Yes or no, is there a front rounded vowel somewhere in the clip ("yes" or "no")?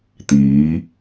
no